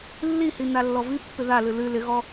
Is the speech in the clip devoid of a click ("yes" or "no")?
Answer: yes